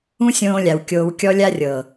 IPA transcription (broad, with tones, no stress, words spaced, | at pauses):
ũ˦sʲõː˧lʲa˨w kʲoː˧wkʲɔ˦lʲa˦ rʲɤ˨